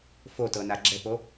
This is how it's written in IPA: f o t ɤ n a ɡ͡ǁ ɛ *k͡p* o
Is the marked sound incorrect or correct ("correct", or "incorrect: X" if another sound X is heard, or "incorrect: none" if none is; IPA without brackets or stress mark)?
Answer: incorrect: p